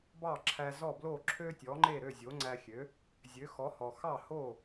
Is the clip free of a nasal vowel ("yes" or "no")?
yes